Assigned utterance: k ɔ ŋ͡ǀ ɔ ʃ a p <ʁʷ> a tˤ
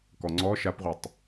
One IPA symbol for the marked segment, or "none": ʁʷ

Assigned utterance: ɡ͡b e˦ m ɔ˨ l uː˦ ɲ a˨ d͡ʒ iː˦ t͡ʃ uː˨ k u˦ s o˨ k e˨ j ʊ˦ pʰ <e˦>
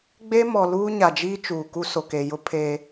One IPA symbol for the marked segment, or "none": e˦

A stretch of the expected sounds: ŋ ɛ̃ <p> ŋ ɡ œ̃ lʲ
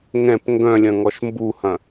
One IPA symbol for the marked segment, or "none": p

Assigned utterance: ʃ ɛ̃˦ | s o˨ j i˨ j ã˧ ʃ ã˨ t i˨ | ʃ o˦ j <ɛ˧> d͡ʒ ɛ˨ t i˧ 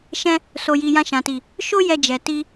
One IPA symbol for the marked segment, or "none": ɛ˦˨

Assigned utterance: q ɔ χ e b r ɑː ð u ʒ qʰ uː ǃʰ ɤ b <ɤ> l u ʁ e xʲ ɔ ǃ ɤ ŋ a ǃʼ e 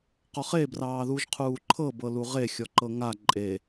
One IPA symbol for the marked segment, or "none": ɤ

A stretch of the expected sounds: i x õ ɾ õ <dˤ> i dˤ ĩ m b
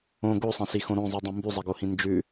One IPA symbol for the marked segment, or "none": zˤ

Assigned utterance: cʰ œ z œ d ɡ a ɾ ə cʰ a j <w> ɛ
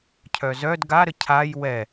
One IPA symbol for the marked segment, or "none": w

